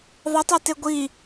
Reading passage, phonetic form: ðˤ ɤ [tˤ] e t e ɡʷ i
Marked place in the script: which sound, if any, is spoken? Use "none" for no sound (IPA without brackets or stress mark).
tˤ